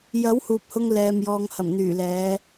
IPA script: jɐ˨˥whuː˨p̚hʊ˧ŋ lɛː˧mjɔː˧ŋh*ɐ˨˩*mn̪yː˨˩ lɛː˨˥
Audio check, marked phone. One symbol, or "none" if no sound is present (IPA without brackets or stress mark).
ɐ˨˩